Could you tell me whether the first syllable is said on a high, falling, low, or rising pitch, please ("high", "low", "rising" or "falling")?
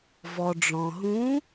low